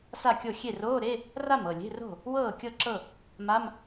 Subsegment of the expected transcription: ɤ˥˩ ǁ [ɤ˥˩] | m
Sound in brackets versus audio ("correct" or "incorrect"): correct